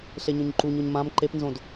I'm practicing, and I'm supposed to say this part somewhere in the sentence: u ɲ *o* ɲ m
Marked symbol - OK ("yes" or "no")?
yes